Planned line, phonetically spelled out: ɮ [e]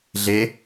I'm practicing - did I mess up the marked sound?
no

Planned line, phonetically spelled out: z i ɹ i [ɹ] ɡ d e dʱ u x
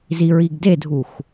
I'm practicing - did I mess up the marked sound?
yes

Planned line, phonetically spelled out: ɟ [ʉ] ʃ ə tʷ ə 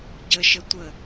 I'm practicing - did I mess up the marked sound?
yes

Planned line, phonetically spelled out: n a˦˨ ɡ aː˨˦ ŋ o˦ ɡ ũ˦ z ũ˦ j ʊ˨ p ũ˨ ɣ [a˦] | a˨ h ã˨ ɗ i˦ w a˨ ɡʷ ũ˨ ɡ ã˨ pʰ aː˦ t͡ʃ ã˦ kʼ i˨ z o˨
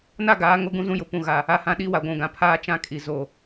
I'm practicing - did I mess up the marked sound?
yes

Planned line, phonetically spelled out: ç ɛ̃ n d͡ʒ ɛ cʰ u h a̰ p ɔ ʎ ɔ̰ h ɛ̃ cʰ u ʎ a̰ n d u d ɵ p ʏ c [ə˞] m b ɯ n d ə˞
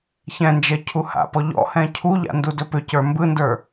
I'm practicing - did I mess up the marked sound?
no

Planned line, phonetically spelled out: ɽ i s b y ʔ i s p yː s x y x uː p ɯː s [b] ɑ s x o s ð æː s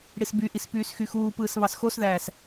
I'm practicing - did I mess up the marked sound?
yes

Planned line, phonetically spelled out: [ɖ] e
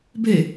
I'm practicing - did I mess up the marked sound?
yes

